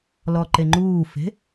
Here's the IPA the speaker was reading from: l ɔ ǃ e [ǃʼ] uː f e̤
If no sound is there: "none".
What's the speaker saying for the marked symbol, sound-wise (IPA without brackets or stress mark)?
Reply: ŋ͡ǃ